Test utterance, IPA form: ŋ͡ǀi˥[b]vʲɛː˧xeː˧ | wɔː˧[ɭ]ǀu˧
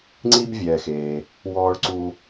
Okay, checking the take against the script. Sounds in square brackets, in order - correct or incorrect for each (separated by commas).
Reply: correct, correct